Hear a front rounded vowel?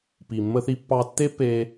no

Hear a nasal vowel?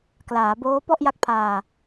no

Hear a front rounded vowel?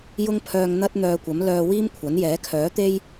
yes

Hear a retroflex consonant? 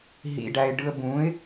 yes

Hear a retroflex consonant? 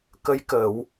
no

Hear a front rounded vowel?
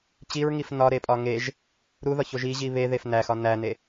no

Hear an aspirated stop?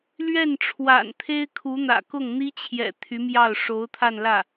yes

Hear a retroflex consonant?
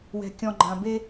no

